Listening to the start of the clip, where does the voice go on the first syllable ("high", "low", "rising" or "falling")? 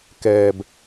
low